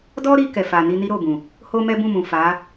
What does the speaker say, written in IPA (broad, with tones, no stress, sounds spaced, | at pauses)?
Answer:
d ɔ˦ ɾ i˧ k ɛ˨ f a˨ n i˧ n i˦ ɾ o˦˨ b ũ˨ | h o˦ m ɛ˦ b ũ˦˨ m ũ˨ f a˨˦